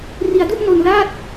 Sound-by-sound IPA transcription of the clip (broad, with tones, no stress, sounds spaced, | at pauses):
r i˧ a̯ d u˥˩ ʔ n o˧ n l aː˥˩ t̚